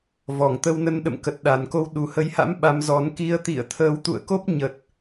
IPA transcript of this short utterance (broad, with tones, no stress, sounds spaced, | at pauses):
v ɔ˧˩ ŋ t̪ ə˧ w n ə˧ n ɗ ə̰˧˨ m k ə˨˩ t̚ ɗ a˨˩ n k o˧ w ɗ u˨˩ h ə˨˦ j h a̰˧˥ m ɓ a˨˦ m z ɔ˨˦ n k i˧ ə̯ t̪ ḭ˧˨ ə̯ t̪ʰ əː˨˦ w t̪ ṵ˧˨ ə̯ k o˦˥ p̚ ɲ ə˨˩ t̚